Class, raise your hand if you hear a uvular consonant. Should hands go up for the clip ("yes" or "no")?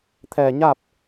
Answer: no